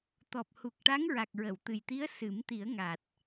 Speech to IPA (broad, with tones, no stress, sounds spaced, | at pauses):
t̪ ɔ˨˩ p̚ h u˨˩ k̚ ʈ a˧˥ ŋ ɹ a˨˩ k̚ ɹ ə˨˩˨ w t̪ ɨ˨˩ j t̪ i˧˥ ə̯ s ɨ˨˩˦ m t̪ i˨˩˦ ə̯ ŋ a˨˩ t̚